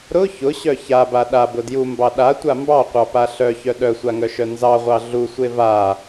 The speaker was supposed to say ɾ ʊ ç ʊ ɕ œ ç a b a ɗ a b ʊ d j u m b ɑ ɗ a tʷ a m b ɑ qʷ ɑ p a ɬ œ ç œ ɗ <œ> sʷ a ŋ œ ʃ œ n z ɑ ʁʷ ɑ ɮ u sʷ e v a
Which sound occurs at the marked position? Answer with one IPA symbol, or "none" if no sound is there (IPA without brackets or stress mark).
œ